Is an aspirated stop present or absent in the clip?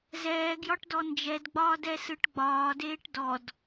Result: absent